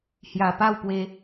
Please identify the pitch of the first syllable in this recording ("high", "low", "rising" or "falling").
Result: low